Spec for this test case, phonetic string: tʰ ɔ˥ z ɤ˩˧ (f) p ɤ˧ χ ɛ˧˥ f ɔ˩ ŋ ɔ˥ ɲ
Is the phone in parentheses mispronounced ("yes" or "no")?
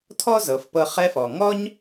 no